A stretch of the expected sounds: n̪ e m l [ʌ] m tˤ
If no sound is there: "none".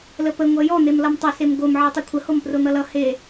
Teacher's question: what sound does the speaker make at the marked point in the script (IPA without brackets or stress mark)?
ʌ